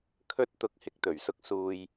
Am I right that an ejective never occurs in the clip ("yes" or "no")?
yes